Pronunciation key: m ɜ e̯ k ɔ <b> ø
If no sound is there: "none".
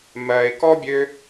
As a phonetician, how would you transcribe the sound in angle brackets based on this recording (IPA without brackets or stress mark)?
bʲ